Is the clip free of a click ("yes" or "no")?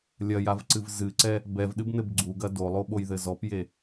no